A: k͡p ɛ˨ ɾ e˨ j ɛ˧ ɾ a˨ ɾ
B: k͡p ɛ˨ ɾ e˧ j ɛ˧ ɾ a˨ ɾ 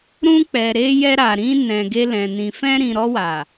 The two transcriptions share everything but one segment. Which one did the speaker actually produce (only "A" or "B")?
B